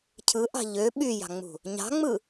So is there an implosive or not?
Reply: yes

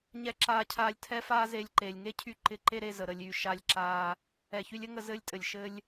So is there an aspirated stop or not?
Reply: yes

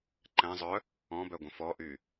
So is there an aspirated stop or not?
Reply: no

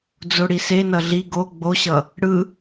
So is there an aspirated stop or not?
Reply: no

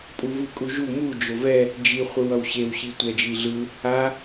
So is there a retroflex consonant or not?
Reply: no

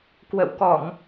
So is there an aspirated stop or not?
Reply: no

